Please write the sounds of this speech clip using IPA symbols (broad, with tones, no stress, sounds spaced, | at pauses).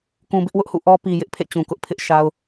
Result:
k ũ˨ b ɪ˦ ʔ w ʊ˦ ʔ h ṵ˦˨ ʔ ɔ˦ p i˨ j ɪ˦ ʔ pʰ ḛ˦˨ t͡ɕ ũ˨ k ʊ˦ ʔ pʰ ɪ˦ ʔ ʃ a˦ ʊ̯